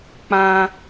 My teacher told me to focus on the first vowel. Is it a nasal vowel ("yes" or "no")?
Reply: yes